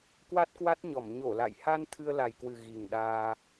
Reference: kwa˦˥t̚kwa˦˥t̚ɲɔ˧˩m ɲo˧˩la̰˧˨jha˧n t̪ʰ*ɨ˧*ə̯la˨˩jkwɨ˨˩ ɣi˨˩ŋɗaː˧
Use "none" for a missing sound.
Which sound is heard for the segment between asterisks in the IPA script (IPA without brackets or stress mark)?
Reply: ɨ˧